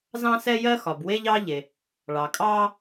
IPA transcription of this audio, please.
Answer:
z ɑ̃˥ s ɛ˥ j ɜ˥ x ɒ˩ b w e˥ ʎ ɑ˥ ʎ e˩ | ɭ ɑ˩ kʼ ɑː˥

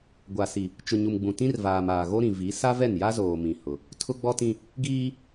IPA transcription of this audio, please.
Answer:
ɡʷ a˨ s i˨ | t͡ʃ ʊ˨ ɲ u˨ m ɡ͡b ũ˨ t ĩ˦ r v aː˨ m aː˨ ɣ o˦ ɾ ĩ˨ v i˨˦ s a˦ v ɛ˦˨ n j a˦ z oː˨ m ĩ˨ h ʊ˨ | tʰ ʊ˦ ɡ͡b ɔ˦ t ĩ˦ | ɡ iː˦

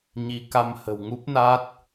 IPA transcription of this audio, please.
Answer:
ɲ i˨˦ k a˧ m h ə̤˨˩ w ŋ u˦˥ p̚ n a˦˥ t̚

